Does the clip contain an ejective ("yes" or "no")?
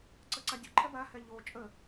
yes